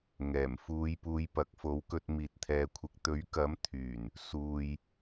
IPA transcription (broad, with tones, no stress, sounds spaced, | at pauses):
ŋ ɛː˨˩ m f uː˨˧ j p uː˨˧ j p ɐ˨˥ k̚ f o˨˥ w k ɵ˧ t̚ m iː˨ t̚ t̪ʰ ɛː˨ kʷʰ ɪ˨ k̚ t̪ ɵ˨˥ ɥ k ɐ˨˥ m t̪ʰ yː˨˩ n | s uː˨ j